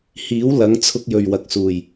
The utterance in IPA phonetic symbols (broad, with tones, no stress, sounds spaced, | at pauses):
h iː˨˥ w l ɐ˨˥ ŋ t͡sʰ ʊ˧ k̚ j ɵ˨˩ ɥ w ɐ˨ k̚ s uː˨˩ j